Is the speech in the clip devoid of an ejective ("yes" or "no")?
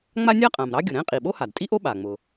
no